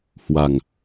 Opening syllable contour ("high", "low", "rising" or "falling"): low